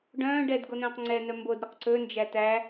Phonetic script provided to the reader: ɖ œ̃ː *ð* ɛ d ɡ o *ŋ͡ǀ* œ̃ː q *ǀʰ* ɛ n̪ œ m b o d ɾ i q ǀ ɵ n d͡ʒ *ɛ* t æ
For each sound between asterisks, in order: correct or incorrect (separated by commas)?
incorrect, incorrect, incorrect, incorrect